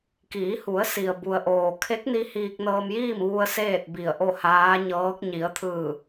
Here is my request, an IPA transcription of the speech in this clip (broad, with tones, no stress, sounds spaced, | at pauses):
k iː˩˧ h u˩˧ ə̯ s i˩ ə̯ b u˩ ə̯ ʔ oː˩ kʰ e˧˥ k̚ n i˧ h iː˧ k̚ n ɤː˧ m j iː˥˨ m ʋ u˧ ə̯ s eː˥˨ t̚ b i˧˩ ə̯ ʔ o˥˨ h aː˧˥ ɲ ɤː˧˥ k̚ ɲ i˩˧ ə̯ t̪ʰ ɯː˧˩